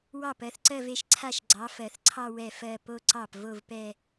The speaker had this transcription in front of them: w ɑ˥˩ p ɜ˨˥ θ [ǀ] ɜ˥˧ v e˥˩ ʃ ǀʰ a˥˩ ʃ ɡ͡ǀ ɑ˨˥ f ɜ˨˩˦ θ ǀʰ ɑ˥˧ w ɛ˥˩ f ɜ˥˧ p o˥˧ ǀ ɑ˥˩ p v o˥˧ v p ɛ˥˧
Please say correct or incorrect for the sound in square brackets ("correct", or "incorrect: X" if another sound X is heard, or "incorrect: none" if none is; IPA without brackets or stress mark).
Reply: correct